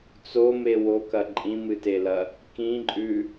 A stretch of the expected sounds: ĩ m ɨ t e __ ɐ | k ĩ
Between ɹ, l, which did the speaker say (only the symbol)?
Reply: l